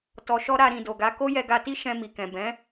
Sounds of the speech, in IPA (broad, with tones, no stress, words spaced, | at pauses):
tɔ˧ʃɔ˦ ɾa˧ɾĩ˨do˨ɡa˨˦ ko˦jɛ˧ɡa˧ti˦ ʃɛ̃˧mi˨ kɛ̃˨bɛ̃˨˦